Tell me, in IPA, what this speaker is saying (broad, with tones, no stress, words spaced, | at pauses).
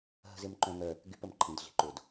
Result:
ɦə̤˦zɪ˦m ǃœ̃˦ŋœ˦ | ɡy˦pə˨m ǃʰĩ˦dɮi̤˦ǃʊ˦d